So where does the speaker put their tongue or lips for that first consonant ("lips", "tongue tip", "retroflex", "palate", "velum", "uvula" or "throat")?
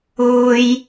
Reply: palate